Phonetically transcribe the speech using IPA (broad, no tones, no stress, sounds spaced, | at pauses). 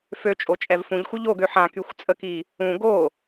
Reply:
f ø t͡ʃʼ o t͡ʃʼ ɛ v f ũ ʎ xʷ œ ʎ o ɡ ø ħ ã k y xʷ t͡sʼ ə k i | ũ ɡ o